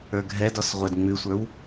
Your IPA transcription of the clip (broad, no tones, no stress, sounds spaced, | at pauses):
ə˞ ɡʱ ɛ d ɔ s ʁʷ ɛ d ŋ͡m ʉ sʷ ə˞ w